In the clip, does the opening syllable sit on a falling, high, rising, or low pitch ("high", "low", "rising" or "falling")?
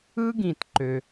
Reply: high